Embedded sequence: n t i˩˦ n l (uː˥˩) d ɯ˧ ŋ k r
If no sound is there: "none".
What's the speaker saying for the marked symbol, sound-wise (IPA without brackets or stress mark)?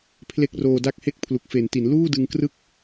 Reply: uː˥˩